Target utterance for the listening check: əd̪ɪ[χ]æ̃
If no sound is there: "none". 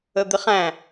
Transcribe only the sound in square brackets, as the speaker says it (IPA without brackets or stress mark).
χ